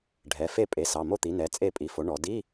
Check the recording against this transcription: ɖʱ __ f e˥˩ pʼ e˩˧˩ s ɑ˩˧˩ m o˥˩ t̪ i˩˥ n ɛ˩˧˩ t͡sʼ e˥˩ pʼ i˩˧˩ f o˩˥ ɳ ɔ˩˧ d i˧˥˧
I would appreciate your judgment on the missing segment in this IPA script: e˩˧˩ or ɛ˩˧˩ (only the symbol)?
ɛ˩˧˩